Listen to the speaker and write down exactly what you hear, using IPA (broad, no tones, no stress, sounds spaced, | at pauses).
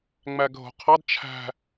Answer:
ŋ͡m æ ɡʱ o̤ qʰ ɑ d t͡ʃʰ æ̤